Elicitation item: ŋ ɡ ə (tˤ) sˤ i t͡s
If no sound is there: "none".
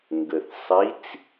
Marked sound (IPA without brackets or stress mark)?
θ